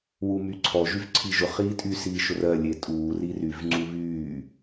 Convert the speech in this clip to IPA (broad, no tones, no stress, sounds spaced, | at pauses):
w u m y ǀʰ ɔ ʒ y v ǀʰ i ʒ ʊ χ iː tʼ y s iː ʃ ʊ r ɜ lʲ e tʼ uː r i r y v ŋ͡ǀ u β yː